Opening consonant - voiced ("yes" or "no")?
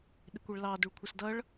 yes